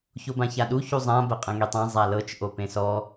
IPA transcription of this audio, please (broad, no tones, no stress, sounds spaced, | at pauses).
ç o b ã ç a ɗ u ç u zˤ ã b ɛ qʼ ẽ ŋ e tˤ ã zˤ a l ɤ t͡ʃ ʔ o p ẽ s ɔ